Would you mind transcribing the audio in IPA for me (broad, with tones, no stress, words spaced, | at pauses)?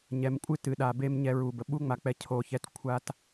ɲɛ˨mkʷʼɨ˦ tɨ˨ɗa˨be˦m ɲɛ˦ɹu˨bə˨ ɓu˦ŋ͡ma˨k͡pɛ˨ cʰo˨çɛ˨t kʷʰa˨t